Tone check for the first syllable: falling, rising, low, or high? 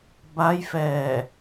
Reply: rising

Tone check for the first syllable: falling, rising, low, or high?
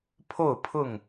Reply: falling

